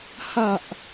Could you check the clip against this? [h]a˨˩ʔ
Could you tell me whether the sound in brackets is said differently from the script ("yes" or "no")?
no